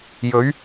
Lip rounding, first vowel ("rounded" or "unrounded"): rounded